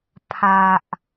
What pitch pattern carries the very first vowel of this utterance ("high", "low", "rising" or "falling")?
low